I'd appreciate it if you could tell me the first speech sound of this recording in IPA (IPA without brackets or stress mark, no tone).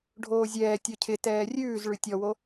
ɖʱ